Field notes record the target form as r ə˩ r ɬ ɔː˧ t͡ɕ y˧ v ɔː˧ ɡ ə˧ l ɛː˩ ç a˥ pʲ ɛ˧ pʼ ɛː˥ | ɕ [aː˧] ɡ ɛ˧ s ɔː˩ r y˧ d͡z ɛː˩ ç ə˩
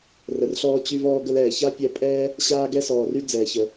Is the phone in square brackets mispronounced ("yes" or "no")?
no